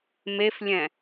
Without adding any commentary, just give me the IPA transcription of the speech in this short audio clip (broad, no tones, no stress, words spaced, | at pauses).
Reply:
meflʲɛ̃